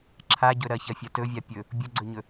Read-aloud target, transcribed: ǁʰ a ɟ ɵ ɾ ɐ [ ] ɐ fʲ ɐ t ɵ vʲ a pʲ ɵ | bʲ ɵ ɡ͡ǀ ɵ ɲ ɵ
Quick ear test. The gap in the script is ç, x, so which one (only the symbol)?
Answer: ç